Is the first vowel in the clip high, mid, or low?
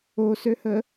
mid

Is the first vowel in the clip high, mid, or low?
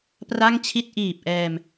low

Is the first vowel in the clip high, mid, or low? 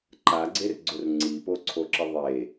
low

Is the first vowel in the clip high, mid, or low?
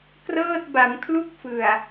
mid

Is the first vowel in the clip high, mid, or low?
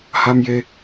low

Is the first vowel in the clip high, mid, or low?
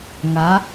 low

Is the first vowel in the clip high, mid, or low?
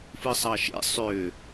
high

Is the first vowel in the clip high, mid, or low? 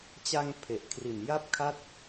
low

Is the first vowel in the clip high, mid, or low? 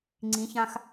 high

